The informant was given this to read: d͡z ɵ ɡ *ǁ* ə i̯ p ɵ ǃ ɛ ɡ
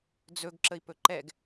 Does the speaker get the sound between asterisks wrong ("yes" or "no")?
no